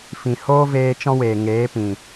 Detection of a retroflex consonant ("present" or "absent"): absent